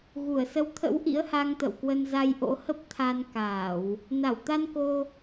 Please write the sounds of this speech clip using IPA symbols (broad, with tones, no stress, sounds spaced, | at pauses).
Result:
ɣ u˧˩ ə̯ s ə˨˦ w t̪ʰ ə̰˧˥ w ʔ ḭ˧˥ ə̯ h a˧ ŋ t̪ ə̰˧˨ w k w ə˧ n z a˧ j ʔ o̰˧˥ h ə˦˥ p̚ t̪ʰ a˧ n k aː˧˩˨ w | n a˧˩ w t̪ a˧ n k o˧